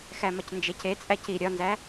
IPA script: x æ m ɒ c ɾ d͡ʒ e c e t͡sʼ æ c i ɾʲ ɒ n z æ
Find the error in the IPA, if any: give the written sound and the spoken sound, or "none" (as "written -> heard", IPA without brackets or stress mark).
ɾ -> n